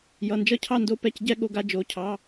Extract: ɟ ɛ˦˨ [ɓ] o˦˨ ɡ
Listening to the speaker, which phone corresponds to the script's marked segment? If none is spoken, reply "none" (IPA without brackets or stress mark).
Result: ɠ